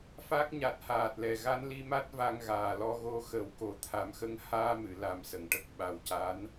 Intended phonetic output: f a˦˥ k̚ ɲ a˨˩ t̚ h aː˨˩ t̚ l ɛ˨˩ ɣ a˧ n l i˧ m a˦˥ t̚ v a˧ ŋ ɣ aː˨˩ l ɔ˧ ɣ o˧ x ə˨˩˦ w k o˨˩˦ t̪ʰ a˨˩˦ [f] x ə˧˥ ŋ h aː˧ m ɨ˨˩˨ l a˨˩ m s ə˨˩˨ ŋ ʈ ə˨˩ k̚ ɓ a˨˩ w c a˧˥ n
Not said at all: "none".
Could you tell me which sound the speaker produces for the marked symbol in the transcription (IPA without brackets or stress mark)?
m